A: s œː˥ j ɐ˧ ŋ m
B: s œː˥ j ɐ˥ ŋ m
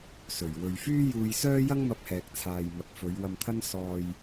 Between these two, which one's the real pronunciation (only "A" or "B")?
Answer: B